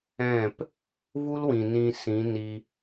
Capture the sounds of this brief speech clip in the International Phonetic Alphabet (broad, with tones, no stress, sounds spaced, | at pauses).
ɛ̃˦˨ p | v u˦ l w ĩ˨ n ĩ˧ s ĩ˨˦ n i˧